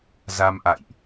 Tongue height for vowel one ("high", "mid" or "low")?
low